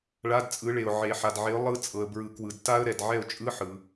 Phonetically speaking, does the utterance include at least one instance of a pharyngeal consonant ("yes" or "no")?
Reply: yes